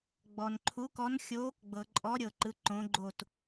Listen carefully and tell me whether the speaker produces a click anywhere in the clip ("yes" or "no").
yes